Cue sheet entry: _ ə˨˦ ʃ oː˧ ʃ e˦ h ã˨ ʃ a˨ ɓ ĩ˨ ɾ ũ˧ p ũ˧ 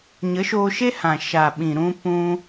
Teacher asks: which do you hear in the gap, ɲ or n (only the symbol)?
ɲ